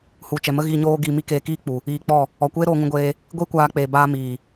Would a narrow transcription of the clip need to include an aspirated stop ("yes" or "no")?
no